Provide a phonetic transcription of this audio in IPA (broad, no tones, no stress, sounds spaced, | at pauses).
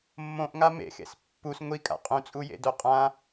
mː õ ʔ ŋ a m ḛ x ḛ s pː u s ŋʷ i kʼ a̰ qʼ ũ t͡sʼ u j ḛ d o qʼ ã